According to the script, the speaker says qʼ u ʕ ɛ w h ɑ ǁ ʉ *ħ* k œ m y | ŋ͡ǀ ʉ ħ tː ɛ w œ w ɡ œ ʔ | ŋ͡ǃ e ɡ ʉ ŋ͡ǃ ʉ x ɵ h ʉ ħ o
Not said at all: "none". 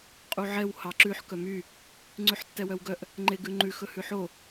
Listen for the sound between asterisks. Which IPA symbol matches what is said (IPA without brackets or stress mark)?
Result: ħ